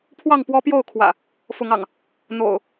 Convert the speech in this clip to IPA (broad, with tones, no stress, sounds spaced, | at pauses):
pʰ w ɑ˥˨ ŋ p w ɔ˦ p j o˥˨ ʊ̯ kʰ w ä̰˨˩ | f ʊ˨˦ ŋ ɑ̰˨˩ ŋ | n̪ o̰˨˩ ʊ̯